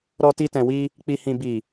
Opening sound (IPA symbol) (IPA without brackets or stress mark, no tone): ɾ